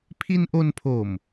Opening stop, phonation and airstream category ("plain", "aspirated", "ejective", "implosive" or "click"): aspirated